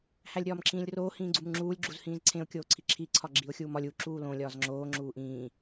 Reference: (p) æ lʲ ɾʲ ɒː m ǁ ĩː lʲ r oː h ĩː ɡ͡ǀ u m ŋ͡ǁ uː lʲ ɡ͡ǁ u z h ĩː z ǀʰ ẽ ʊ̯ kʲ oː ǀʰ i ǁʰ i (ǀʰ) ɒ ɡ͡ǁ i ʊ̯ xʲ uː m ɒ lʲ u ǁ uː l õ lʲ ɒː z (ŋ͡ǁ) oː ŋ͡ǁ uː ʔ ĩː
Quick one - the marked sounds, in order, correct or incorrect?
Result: incorrect: h, correct, correct

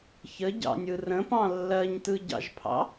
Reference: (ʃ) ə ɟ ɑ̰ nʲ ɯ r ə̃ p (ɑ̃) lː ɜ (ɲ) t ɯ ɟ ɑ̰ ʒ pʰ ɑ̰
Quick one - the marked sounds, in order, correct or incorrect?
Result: incorrect: ç, correct, correct

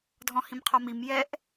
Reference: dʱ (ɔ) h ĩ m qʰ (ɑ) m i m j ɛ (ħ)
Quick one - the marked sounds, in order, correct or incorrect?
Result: incorrect: ɔ̃, incorrect: ɔ, incorrect: ʔ

